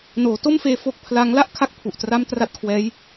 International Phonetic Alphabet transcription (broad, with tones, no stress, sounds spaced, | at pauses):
n oː˩˦ t o˥˩ m f eː˧ f o˦˥ k̚ pʰ l a˦˥ ŋ l a˥˩ ʔ kʰ a˦˥ k̚ pʰ u˨˩ ʔ t r a˦˥ m t r a˦˥ t̚ kʰ w ɛː˦˥ j